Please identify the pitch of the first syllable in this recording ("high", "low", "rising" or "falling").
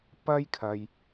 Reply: high